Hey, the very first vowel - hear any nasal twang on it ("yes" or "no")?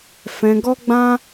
yes